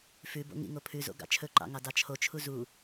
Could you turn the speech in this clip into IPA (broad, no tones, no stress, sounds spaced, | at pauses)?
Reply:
f ʉ b o̰ ŋ ḭ ŋ o pʰ ʉ z o̰ ɡ ɑ̰ t͡ʃʰ ɵ ǃ ɑ̰ ŋ ɑ d ɑ t͡ʃʰ o t͡ʃʰ u z u